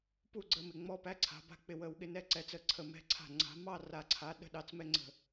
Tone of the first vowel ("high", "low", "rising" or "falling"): falling